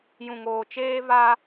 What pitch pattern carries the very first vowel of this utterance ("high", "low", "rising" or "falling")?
low